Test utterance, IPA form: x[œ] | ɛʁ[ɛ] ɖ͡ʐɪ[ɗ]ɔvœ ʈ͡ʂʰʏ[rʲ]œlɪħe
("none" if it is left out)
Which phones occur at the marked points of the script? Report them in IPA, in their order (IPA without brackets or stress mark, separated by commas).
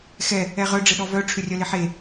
ɛ, œ, ɗ, rʲ